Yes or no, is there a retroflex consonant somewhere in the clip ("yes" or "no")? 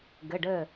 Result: yes